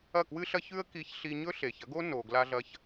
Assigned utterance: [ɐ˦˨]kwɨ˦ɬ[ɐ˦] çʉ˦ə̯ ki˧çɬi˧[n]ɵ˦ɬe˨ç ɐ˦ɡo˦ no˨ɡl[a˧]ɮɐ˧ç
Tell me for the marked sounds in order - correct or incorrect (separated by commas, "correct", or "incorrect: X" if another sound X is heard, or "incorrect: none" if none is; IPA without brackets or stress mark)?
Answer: correct, correct, incorrect: ɲ, correct